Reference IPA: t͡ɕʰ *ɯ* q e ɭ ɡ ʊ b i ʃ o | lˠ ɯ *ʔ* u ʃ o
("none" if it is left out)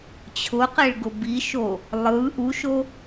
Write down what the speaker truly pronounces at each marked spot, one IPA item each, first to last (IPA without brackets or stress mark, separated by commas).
ʊ, ʔ